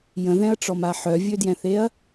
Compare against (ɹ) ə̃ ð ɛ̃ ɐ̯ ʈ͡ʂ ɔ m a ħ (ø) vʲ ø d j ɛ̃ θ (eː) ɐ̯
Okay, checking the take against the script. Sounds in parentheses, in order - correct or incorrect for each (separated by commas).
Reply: incorrect, incorrect, incorrect